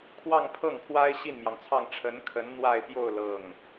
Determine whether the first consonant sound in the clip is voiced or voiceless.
voiceless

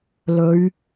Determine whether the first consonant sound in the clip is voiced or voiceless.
voiced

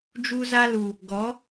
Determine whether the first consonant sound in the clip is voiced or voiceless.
voiced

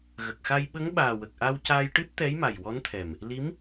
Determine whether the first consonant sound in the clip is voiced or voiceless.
voiced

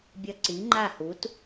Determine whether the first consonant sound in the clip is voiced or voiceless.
voiced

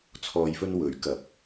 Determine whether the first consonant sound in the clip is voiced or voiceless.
voiceless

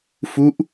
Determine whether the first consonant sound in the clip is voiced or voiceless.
voiceless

